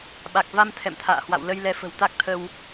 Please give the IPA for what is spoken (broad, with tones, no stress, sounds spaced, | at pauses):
ɓ a˨˩ k̚ v a˧ m t̪ʰ ɛ̰˧˨ m t̪ʰ a̰ː˧˨ h w a̰˧˨ w l ə˧ j l ɛ˧ f ə̤˨˩ w t̪ a˦˥ k̚ t̪ʰ ə˧ w